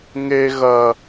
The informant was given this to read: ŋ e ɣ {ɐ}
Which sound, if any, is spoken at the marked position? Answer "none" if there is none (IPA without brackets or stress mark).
ɐ